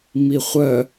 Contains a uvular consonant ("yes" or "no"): yes